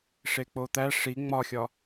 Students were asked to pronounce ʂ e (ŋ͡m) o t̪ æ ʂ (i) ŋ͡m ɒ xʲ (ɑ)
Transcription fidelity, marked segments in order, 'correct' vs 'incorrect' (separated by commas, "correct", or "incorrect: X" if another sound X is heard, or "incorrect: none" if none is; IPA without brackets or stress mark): incorrect: k͡p, correct, incorrect: ɒ